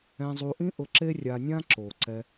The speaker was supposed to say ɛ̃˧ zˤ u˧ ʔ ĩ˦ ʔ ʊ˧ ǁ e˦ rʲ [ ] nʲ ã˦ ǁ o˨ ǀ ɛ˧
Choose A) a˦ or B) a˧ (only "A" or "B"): B